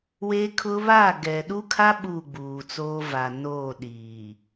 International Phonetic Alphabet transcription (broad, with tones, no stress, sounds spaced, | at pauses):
w eː˦ kʰ ʊ˦ β aː˦˨ ɡ ɛ˨ ɗ u˦ kʰ a˦ ɓ u˦˨ ɡ͡b uː˨ t͡s oː˦ v a˨ n oː˦˨ ɗ iː˨